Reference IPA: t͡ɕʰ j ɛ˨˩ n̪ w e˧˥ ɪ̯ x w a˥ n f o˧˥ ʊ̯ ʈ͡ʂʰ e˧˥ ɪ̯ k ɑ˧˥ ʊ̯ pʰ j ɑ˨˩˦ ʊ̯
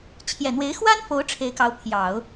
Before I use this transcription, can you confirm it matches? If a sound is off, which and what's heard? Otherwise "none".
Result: none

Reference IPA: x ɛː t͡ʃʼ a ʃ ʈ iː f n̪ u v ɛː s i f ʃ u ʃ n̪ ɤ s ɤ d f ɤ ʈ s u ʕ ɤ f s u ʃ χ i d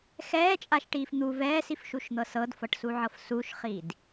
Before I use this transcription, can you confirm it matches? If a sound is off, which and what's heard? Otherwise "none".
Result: none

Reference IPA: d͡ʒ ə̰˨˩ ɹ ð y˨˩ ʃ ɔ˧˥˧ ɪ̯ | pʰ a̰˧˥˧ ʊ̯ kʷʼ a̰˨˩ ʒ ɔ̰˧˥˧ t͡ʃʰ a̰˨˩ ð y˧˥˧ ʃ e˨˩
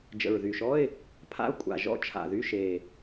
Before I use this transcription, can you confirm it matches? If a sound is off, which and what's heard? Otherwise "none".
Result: none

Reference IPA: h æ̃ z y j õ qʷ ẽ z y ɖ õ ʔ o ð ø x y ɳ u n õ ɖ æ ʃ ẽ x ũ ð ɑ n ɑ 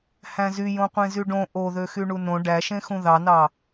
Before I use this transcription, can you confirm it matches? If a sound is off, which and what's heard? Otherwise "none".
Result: none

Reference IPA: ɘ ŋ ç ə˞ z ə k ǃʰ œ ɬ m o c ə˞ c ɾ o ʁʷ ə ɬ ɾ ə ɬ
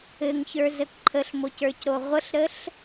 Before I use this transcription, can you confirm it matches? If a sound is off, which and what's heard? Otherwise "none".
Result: œ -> ə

